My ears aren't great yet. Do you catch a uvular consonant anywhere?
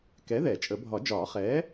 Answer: yes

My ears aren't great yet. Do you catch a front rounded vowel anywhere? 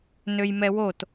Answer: yes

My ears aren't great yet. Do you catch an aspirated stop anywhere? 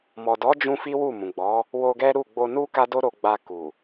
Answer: no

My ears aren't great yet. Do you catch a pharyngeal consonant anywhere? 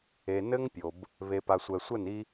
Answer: no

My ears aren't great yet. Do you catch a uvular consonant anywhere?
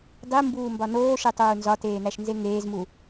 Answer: no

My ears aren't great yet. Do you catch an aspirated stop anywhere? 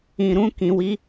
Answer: no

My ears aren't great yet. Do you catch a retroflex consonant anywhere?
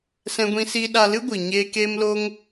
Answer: no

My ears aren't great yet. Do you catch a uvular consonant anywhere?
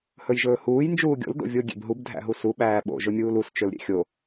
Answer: no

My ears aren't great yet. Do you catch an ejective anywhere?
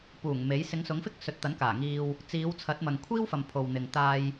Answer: no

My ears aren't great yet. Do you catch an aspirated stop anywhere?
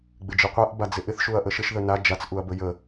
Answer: no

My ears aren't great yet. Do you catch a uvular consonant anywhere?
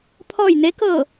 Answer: no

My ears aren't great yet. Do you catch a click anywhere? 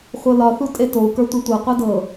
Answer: no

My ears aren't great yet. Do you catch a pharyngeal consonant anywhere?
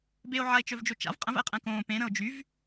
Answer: yes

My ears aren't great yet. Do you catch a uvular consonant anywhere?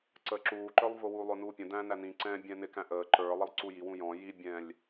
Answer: no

